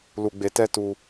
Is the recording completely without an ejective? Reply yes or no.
yes